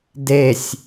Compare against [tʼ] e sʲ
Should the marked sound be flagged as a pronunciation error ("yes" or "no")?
yes